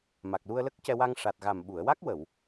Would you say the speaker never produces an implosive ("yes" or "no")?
no